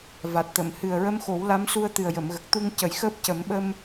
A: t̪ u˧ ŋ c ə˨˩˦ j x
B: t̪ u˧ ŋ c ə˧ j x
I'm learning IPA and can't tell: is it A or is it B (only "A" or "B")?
A